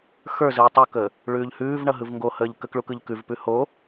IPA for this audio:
x ə˞ z ɯ u̯ tˤ u k əː | ɭ ʉː ʎ h ʉː v ɳ ʌ ɦ ɯ v ŋ ɡ o h əː ʎ k ə k ɭ u k ɯ ʎ k ʉ v p ʉ h o

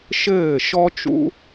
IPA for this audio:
ʃ ɘː˦˨ ʃ ɔ˦ t͡ʃ ṵ˦

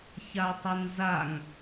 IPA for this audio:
ç a tˤ ɐ n z a ŋ

